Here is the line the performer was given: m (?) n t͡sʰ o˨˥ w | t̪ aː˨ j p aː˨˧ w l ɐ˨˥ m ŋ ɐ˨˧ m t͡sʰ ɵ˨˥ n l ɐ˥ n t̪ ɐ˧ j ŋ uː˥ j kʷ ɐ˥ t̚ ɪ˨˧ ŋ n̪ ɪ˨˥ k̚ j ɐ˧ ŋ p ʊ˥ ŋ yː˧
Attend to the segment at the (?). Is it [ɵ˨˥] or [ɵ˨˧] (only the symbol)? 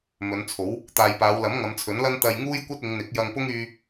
ɵ˨˧